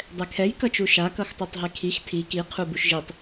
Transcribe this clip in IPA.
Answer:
dˤ ɛ kʰ ɛ j k ʌ t͡ʃ u ʃ a k ʌ x tˤ o tˤ ɦ e kʰ i x tʰ i k i qʰ u b u ʃ ʒ i tˤ

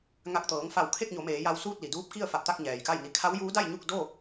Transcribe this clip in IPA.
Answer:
ŋ a˧˩ k̚ t̪ ɤː˩˧ ŋ f a˧˩ w kʰ e˥˨ k̚ ɲ o˩˧ m eː˩˧ j a˧ w s uː˥˨ t̚ l i˩ d uː˧˥ p̚ k i˥˨ ə̯ f a˧˩ p̚ t̪ a˥˨ k̚ ɲ ɛː˩ j k a˥˨ j n i˧ kʰ a˧˥ w j uː˧˥ d a˥˨ j ɲ u˥˨ k̚ d o˥˨

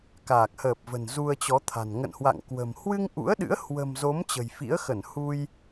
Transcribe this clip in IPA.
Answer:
k aː˨˩ k̚ h əː˨˩ p̚ v ə̤˨˩ n z u˧ ə̯ t͡ɕ ɔ˨˦ t̪ʰ a̤˨˩ n ŋ ə̰˧˨ n h w a̰˧˨ ŋ k w ə̤˨˩ m h w ɨ˧ ŋ ʔ ṵ˧˥ ə̯ ɗ ɨ̰˧˥ ə̯ h w ə̤˨˩ m z o˨˦ m t͡ɕ ə̤˨˩ j f ḭ˧˥ ə̯ x ə˧˩ n h u˧ j

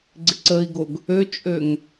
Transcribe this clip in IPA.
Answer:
ɡ͡ǀ ɪ ǀ ə i̯ ɡ o ɡ | ø t͡ʃʼ ø ŋ

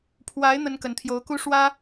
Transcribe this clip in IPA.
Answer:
pʰ w a˧˥ ɪ̯ n̪ ə˥ n k ə˧˥ n t̪ʰ j o˧˥ ʊ̯ k u˥ ʂ w ä˥

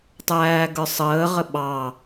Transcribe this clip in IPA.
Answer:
tˤ æː ɡ ə˞ sˤ əː ʁ ə ɓ ɑ

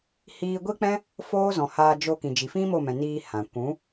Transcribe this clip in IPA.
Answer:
h iː˧ ɡʷ i˦ k͡p ɛ̃˦ | f oː˦ z ɔ̃˨ h aː˧ d͡ʒ o˧ k ĩ˨ d͡ʒ i˨ f ĩ˦ m o˦˨ m ɛ̃˨ n iː˧ h ã˨ kʷ ũ˨˦

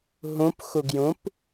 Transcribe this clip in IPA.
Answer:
ɦ ũ p x u ɡ j ũ p

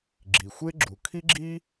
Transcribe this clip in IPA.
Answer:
ɡ͡ǁ i˨ xʷ e˥ ɡ͡ǁ u˨ kʰ i˥ ɡ͡ǁ i˥

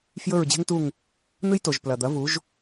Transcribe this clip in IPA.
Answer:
f j ɵ˥˧ ɹ d͡ʑ e̤˥ ŋ t u˥˧ ŋ | n̪ ɨ˥ j t o˨ ʒ p l ɐ˨ d̪ ɐ˨˦ v u˨˦ ʒ

